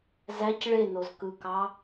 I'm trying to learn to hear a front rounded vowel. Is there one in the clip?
no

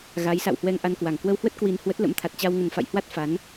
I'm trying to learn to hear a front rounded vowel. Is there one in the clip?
no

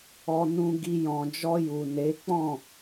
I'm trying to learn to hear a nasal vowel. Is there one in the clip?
yes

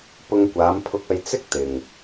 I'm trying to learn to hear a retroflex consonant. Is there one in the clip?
no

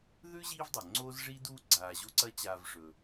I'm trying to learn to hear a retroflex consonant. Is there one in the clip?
yes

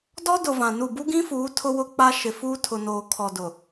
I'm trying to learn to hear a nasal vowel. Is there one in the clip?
yes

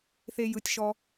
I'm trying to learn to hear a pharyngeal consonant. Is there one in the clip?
no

